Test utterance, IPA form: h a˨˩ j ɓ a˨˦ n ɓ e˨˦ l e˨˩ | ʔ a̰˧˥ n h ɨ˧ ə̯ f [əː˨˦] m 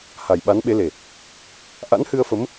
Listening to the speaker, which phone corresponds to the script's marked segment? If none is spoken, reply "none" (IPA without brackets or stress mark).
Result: ə˨˦